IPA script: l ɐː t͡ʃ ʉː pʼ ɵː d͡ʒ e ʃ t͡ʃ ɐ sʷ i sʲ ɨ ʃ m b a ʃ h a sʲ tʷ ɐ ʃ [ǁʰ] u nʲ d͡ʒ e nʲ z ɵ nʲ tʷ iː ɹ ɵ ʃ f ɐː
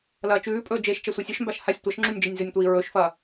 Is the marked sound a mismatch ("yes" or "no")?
yes